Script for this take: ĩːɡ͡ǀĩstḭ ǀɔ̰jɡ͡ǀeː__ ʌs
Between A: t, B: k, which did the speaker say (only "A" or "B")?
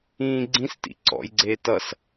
A